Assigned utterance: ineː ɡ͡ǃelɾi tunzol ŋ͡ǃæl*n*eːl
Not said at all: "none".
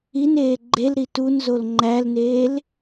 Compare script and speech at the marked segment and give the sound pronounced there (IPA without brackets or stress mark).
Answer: n